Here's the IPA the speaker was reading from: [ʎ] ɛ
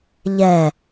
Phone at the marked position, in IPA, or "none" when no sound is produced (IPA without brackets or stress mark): ʎ